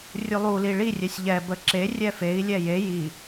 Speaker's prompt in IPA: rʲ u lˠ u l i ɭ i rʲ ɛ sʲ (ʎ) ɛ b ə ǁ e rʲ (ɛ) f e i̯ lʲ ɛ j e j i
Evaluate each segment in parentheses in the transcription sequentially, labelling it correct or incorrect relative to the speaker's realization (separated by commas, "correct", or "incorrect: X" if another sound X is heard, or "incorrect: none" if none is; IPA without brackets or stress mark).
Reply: correct, correct